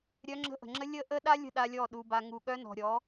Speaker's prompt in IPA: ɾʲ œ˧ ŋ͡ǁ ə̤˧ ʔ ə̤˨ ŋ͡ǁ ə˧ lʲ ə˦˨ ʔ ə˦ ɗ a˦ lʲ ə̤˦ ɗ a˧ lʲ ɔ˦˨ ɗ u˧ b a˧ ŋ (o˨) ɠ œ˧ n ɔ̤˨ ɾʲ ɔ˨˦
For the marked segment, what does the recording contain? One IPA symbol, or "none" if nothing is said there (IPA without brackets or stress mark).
u˨